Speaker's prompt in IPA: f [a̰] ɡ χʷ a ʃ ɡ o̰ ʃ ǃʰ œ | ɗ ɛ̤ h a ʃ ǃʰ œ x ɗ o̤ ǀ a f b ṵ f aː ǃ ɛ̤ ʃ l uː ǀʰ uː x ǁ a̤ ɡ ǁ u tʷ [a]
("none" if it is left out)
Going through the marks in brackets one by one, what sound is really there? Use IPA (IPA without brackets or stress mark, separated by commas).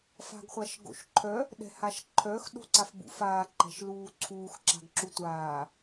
a̤, aː